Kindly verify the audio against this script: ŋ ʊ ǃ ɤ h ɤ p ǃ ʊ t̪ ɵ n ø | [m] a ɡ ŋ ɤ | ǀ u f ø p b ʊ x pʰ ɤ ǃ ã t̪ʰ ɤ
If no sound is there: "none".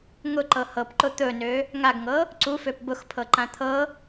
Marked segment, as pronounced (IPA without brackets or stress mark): ŋ